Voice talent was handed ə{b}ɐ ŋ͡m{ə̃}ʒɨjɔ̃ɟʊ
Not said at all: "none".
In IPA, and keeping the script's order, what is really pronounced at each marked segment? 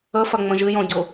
f, ə̃

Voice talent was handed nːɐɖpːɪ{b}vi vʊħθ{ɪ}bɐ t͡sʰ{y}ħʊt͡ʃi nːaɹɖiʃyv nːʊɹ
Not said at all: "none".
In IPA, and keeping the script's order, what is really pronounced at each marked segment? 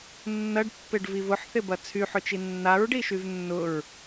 ɖ, ɪ, y

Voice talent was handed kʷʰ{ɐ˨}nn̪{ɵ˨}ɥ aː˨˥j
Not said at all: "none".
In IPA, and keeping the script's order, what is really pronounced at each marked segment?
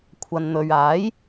ɐ˨, ɵ˨

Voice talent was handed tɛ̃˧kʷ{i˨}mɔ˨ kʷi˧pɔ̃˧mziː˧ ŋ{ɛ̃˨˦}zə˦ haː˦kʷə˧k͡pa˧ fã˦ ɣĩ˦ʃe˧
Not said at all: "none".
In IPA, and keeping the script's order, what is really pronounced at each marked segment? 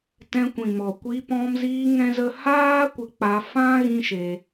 ĩ˨, ɛ̃˦

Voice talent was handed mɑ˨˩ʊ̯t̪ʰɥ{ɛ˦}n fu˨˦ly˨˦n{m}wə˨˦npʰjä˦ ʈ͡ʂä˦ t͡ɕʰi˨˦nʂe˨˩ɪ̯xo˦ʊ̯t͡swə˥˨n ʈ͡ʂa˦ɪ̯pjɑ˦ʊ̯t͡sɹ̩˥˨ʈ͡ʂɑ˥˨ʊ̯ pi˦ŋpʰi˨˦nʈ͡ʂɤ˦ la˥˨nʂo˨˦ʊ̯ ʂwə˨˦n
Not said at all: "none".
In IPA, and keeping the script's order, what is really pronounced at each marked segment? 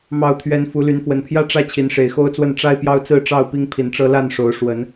ɛ˨˦, f

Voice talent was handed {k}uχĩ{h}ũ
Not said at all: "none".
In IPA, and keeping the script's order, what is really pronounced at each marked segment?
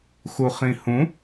x, h

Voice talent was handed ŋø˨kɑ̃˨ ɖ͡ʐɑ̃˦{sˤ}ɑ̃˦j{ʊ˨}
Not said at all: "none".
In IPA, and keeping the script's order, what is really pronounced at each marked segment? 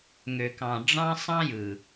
sˤ, ɯ˨

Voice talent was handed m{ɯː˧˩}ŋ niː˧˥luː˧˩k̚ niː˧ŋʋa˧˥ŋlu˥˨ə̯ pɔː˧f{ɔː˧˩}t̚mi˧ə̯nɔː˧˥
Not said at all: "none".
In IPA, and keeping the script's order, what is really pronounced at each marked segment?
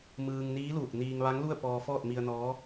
ɯː˧, ɔː˥˨

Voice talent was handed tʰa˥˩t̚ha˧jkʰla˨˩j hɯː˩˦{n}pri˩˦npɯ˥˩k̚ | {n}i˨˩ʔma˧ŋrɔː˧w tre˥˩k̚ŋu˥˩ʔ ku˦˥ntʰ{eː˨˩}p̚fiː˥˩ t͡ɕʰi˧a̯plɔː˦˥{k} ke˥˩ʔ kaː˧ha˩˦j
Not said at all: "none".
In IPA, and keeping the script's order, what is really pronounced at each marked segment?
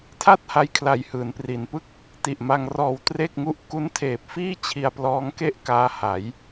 n, t, eː˨˩, ŋ

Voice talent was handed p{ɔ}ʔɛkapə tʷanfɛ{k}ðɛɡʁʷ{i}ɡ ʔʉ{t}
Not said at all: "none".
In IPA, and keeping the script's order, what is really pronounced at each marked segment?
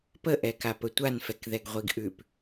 ə, k, i, p

